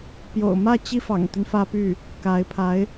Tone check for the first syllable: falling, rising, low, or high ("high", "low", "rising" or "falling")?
low